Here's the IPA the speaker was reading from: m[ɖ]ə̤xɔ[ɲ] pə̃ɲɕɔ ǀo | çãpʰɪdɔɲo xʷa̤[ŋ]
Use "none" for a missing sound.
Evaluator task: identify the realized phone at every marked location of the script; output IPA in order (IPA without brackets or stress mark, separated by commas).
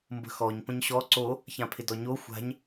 b, ɲ, ɲ